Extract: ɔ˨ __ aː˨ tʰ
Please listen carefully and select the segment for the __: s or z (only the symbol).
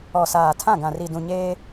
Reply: s